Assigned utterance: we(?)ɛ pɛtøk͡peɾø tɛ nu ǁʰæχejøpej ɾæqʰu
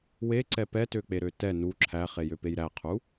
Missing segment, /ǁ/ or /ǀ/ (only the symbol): ǀ